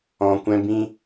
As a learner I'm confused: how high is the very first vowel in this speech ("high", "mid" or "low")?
mid